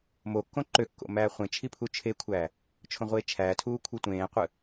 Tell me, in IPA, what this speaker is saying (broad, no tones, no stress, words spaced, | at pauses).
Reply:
mokːõ ǃøkːo̰ mæːχʷẽt͡ʃʰi pʰut͡ʃʰekʷʰæː | t͡ʃʰõʁʷie̯t͡ʃʰæːtʰuː kʷʰɯtʷẽːqʷɯ